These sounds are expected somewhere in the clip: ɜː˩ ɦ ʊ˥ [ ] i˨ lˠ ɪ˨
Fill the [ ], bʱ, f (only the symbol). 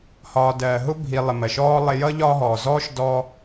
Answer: bʱ